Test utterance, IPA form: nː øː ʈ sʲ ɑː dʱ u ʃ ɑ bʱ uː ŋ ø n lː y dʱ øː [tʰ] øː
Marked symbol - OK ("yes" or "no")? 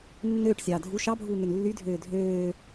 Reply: no